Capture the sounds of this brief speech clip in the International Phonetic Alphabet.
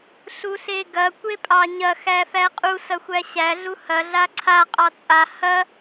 ɬ u ɬ e ɡ ɐ kʷ e pʼ ɑ ɲ ɐ x æ f æ qʼ u s ɐ xʷ æ ɕ æ ɮ u h ɐ ɮ a ǀʰ a qʼ ɑ t͡sʼ a h ɐ

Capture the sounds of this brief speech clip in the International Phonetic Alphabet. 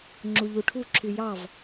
ŋ͡ǁ u ʎ u ʈʰ u ǁʰ y j ɑ v

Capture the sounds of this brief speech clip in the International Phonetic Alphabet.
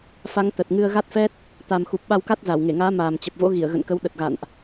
f a˨˦ ŋ t̪ ə˨˩ t̚ ŋ ɨ˧ ə̯ ɣ a˦˥ t̚ f ɛ˦˥ t̚ | t̪ a˨˩ m x u˨˩ p̚ ɓ a˧ w k a˦˥ t̚ z a˧˩ w ŋ e˧˩ ŋ aː˨˦ m aː˨˩ m t͡ɕ ə˨˩ p̚ v o̰˧˥ ɣ i˧˩ ə̯ ɣ ə̰˧˨ n k ə˨˦ w ɗ ə˨˩ t̚ ɣ a̰˧˨ n ʔ

